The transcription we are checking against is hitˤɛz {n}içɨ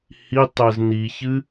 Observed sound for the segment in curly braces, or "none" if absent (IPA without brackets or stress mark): n